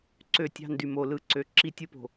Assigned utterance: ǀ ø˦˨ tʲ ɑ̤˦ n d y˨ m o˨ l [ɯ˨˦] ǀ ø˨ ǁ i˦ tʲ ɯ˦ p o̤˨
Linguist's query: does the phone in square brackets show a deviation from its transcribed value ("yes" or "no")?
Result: no